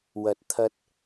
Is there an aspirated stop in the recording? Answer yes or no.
yes